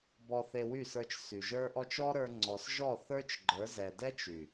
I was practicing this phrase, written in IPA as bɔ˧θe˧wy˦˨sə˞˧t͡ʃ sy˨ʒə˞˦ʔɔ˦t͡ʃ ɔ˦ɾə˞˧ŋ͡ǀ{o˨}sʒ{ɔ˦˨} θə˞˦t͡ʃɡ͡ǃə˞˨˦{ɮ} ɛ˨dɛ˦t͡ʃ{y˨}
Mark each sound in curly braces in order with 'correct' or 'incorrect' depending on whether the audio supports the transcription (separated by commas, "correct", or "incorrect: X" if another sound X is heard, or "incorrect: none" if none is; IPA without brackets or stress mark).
incorrect: ɔ˨, correct, incorrect: z, correct